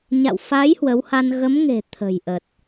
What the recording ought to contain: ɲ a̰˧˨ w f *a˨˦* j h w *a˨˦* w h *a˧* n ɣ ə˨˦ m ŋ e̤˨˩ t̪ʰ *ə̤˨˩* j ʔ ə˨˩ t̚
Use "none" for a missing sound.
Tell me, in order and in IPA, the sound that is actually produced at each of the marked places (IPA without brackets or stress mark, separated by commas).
a˨˦, ə˨˦, a˧, ə̤˨˩